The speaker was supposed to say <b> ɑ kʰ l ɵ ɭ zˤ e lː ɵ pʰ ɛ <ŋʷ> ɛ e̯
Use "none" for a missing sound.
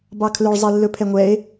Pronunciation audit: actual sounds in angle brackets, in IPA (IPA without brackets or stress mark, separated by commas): b, ŋʷ